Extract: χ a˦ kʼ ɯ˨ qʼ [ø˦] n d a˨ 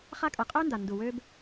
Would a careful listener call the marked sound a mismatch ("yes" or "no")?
no